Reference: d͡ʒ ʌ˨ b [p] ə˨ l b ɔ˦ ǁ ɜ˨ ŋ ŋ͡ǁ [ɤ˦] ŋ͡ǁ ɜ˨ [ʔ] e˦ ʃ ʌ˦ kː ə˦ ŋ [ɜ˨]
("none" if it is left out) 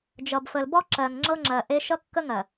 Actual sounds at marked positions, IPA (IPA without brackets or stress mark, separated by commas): f, ɤ˦, ʔ, ɜ˨